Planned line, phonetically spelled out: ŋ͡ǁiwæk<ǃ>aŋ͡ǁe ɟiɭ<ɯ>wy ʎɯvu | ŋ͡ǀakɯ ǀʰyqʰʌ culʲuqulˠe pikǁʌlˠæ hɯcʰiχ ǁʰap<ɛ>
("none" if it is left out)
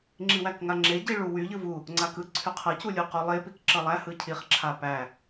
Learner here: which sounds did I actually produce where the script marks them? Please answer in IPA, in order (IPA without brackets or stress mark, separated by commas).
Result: ŋ, u, æ